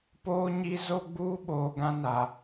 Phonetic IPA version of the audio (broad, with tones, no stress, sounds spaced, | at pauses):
p oː˦ ɲ i˦ z o˦ ɡ͡b uː˦ ɓ oː˨ ɡ ã˦ n a˨